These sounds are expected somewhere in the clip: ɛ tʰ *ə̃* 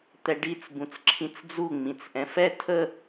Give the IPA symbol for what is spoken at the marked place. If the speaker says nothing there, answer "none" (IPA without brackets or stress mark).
ə